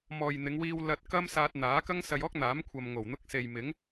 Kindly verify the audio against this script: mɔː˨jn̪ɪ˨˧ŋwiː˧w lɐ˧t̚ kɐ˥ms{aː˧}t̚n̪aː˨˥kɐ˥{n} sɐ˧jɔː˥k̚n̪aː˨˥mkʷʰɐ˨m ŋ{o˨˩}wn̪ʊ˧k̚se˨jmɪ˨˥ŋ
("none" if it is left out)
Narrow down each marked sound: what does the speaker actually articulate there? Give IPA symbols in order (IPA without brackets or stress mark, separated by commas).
aː˧, ŋ, o˨˩